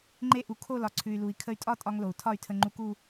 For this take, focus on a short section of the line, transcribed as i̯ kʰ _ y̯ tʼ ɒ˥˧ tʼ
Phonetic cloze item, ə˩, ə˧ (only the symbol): ə˧